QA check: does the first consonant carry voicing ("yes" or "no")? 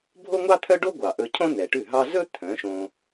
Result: yes